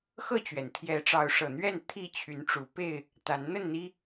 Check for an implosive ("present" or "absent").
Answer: absent